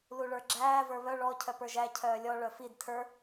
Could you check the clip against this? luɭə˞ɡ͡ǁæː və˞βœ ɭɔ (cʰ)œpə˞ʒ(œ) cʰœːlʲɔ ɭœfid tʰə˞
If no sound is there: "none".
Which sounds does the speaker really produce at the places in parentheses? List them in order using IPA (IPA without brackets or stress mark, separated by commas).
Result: cʰ, æ